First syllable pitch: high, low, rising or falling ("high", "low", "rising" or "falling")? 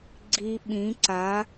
low